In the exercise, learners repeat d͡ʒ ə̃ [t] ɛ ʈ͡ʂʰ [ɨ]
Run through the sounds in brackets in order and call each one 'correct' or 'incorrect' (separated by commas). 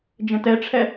correct, incorrect